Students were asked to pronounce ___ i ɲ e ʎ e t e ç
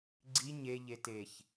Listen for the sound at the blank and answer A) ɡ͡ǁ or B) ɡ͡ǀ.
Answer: B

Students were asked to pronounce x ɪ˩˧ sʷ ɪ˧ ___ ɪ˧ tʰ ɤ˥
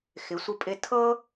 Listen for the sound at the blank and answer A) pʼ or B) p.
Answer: A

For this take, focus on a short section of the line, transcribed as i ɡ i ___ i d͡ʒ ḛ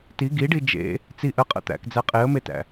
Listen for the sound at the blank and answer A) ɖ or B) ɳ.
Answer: A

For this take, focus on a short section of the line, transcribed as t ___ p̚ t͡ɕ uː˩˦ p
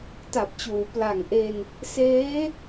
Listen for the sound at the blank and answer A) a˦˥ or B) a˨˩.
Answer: B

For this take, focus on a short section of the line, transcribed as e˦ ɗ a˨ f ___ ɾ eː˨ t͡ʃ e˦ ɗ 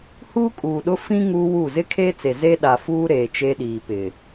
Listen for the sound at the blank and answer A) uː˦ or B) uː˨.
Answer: A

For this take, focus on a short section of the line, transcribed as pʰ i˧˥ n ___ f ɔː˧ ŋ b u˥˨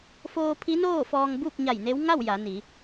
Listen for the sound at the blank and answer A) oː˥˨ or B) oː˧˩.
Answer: A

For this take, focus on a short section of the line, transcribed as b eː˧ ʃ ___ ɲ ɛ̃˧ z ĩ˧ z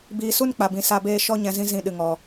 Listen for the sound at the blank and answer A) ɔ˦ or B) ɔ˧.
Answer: B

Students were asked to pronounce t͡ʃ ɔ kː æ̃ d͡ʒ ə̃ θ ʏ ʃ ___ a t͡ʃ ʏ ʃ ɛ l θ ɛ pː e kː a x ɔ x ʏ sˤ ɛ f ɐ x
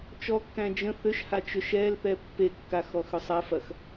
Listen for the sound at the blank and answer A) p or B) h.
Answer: B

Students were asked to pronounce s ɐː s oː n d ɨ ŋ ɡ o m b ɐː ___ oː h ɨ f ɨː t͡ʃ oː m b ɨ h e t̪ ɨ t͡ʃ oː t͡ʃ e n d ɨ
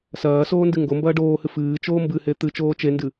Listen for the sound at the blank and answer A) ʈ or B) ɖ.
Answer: B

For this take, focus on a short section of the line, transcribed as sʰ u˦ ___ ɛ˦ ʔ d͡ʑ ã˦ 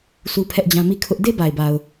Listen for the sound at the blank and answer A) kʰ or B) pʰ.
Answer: B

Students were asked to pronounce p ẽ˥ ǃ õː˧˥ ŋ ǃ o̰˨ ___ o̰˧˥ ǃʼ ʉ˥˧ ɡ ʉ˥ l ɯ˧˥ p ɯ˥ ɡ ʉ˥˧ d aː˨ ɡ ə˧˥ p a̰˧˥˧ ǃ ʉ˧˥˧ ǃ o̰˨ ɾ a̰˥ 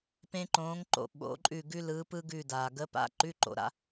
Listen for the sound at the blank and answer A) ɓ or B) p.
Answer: A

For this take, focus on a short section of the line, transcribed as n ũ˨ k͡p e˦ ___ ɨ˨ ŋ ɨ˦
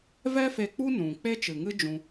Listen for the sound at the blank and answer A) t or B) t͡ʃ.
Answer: B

